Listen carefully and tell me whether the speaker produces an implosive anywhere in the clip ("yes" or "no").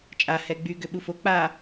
yes